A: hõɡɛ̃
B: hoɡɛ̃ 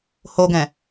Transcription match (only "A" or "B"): B